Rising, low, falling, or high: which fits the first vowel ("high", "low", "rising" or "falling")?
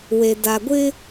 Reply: low